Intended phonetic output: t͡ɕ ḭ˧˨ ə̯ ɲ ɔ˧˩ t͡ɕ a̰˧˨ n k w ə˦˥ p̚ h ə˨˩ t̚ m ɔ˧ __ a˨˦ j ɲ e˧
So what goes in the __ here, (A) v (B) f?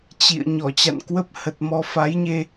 B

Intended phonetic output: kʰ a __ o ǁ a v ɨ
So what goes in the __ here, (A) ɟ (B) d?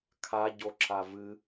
A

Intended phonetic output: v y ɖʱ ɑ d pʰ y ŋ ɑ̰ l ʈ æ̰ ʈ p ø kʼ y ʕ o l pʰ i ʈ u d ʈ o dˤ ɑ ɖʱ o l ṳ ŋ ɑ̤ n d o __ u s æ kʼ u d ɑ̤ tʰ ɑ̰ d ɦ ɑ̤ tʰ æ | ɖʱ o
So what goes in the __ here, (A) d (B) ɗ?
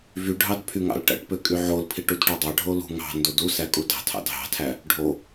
A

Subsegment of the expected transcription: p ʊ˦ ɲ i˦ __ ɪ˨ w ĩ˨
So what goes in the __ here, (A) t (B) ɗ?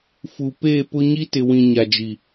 A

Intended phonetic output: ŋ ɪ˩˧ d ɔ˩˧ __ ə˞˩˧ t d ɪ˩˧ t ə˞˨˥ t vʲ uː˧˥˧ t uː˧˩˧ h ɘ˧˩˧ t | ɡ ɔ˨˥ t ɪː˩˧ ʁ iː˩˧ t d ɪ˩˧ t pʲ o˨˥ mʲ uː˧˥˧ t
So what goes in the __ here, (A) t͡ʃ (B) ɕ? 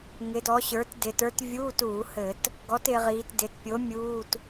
B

